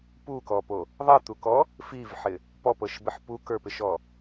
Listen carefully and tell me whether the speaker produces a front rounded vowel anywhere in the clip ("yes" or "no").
no